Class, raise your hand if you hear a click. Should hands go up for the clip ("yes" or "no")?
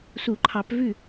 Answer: yes